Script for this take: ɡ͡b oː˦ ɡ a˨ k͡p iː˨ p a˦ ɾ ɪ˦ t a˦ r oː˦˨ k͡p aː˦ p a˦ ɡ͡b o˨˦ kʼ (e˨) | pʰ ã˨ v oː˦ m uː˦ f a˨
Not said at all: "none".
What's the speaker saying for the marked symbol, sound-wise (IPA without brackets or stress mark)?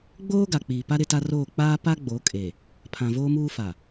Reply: e˨